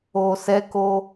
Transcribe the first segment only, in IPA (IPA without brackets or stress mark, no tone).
o